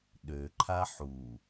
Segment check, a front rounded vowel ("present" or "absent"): present